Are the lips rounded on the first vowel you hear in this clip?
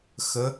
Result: no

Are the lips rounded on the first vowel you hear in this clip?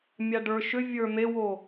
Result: no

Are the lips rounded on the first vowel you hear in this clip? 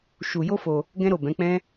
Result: yes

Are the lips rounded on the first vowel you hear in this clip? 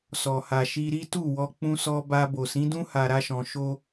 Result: yes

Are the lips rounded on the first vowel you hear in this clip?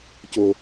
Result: yes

